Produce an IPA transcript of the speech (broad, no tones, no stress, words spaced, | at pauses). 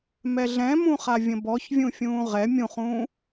mɛɮɛ̃mũχa vʲə̃bɔçvʲũ fʲũːʁɛ mʲũχũː